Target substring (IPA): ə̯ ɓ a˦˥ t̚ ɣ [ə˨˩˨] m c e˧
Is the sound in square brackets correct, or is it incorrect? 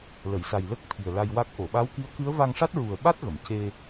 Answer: correct